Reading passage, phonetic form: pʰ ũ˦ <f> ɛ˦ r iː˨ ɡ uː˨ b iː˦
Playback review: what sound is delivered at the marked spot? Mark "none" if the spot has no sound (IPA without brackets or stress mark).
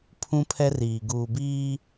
pʰ